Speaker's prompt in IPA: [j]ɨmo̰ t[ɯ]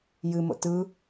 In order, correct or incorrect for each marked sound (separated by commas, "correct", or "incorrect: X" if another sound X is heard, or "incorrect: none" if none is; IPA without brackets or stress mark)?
correct, correct